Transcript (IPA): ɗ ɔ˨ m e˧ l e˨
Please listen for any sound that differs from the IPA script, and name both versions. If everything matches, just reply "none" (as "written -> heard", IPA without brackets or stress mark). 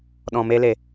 ɔ˨ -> ɔ̃˨